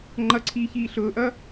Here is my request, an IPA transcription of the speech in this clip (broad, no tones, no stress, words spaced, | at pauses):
ŋ͡ǃʌǀʰiː çiːɬʊːʔʌː